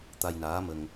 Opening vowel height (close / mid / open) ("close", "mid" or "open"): open